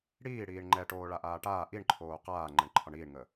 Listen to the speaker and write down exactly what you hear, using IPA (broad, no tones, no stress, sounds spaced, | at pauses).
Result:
ɽ iː ɽ iː ɳ ŋ͡ǃ ɛ ʈ oː ɭ a ʔ aː ʈ aː ʔ i ɳ ǃʰ oː q aː ŋ͡ǃ ɛ ɳ ǃʰ ɒ ɳ iː ɳ ŋ əː